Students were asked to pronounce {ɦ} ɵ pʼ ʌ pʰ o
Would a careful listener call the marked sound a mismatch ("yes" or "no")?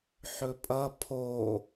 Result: yes